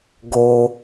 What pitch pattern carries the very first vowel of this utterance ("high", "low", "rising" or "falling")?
low